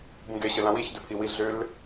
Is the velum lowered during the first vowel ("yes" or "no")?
yes